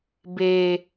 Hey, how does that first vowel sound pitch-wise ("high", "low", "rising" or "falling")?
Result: high